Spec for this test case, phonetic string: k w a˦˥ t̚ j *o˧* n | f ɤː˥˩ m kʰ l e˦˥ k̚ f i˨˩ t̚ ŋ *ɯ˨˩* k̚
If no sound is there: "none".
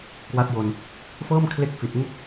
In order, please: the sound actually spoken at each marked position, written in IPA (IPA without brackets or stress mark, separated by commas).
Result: o˧, ɯ˥˩